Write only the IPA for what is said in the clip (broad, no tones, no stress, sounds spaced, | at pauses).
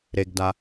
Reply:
ɾ e ɡ d a